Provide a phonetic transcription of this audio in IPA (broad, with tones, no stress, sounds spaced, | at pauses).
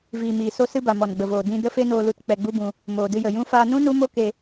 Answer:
v iː˨ m iː˨ s o˧ s ɨ˧ b a˨ m ɔ˨ n ɡ͡b ə˨ v oː˨ d ĩ˧ d ə˦ f e˦ n oː˧ l u˧ t k͡p ɛ˧ ɡ͡b u˦ b ũ˧ | m oː˨ d ɨ˧ j ə˨ j ũ˧ f aː˧ n ũ˦ n u˦ m o˦ k e˧